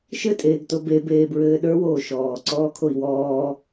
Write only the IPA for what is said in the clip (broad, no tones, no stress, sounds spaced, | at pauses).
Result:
ʃ ɘ tʼ eː ɡ t o b e b eː b ɹ ɘː ɗ ə˞ w oː ʃ ɔː ǀ ɔː kʰ o i̯ w ɔː